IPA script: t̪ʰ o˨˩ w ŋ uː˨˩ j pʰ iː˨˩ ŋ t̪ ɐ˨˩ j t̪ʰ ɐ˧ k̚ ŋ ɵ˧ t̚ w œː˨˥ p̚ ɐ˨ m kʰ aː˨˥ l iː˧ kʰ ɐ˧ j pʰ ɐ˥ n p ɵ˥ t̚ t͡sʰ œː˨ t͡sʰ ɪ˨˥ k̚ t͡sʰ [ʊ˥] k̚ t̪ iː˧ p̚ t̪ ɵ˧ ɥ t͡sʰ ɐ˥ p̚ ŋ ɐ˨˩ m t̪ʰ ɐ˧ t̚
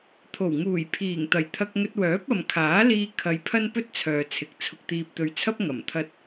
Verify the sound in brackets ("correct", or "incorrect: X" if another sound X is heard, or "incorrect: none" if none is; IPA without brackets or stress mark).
incorrect: ʊ˧